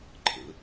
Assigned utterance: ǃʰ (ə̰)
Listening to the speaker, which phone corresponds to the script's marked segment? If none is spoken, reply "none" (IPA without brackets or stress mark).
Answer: ə̰